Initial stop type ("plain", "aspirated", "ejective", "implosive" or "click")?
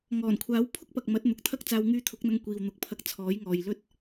aspirated